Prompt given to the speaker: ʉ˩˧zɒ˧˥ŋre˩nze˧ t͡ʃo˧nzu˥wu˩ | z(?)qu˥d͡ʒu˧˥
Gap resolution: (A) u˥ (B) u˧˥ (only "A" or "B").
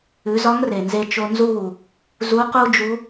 B